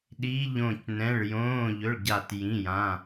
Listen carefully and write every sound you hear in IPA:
ɗ iː˧˥˧ ʎ õː˦˨ c n ɛ̃˧˥˧ ɭ j õː˧˥˧ ʎ ɵ˧˥˧ ɭ ɟ a˦˨ t j ĩ˧˥˧ j ã˧˥˧

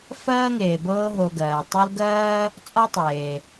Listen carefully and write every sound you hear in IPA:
f ɜː˥ ŋ eː˩ b ɤː˦ ɦ o˨ ɡ ɜː˩ tˤ u˦ l ɡ ɜː˥ | t͡sʼ ɒ˥ tˤ eː˩

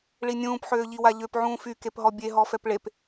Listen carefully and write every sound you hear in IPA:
ɭ i nʲ ũː p ħ øː ʎ i w a ʎ ø p ʕ ũː f y k e p ɦ ɔ bʲ e ɦ ɔ f ɛ p ɭ e p

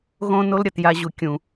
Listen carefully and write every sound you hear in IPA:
ɣ õ˦ n o˦ l ɾʲ ʌ˨ t j a˧ ʑ u˨ kʲ ũ˨

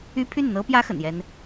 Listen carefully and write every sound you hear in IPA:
y˥ pʰ y˥˩ n n̪ ɤ˥ p j ä˥ x ə̰˨˩ n j ɛ˥ n

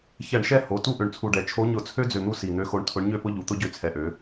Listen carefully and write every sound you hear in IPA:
ç ɛ˧˩˧ ɳ ʃ ɛ˦ h o˩˧ t u˥˨ ʔ ø˨˩ ɳ t͡sʰ u˨˩ ɖ ɛ˩˧ t͡ʃʰ o˨˥ ɲ ʊ˧˩˧ t͡sʰ ø˦ d͡z ø˨˩ n̪ u˦ s i˨˩ n̪ ø˨˥ x o˨˥ ɳ tʰ ʊ˨˥ ɳ ɲ ø˥˨ p ʊ˦ ʎ u˨˩ t̪ ʊ˦ ɟ ø˨˥ t͡sʰ ɛ˨˩ ʔ ø˩˧

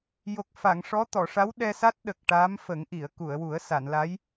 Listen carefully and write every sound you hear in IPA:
j o˨˩ k̚ f a˨˩˨ ŋ ʂ ɔ˧˥ t̪ ɔ˨˩˨ ʂ a˧˥ w ɗ ɛ˧ s a˦˥ t̚ ɗ ə˨˩ k̚ ʈ a˧˥ m f ə˨˩˦ ŋ ʔ i˨˩˨ ə̯ k u˨˩˨ ə̯ w u˨˩˦ ə̯ s a˨˩˨ n l a˧˥ j

